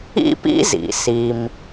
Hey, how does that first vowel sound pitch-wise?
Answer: high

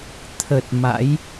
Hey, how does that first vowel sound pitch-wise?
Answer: low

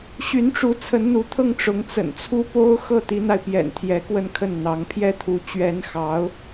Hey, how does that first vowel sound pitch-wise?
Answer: rising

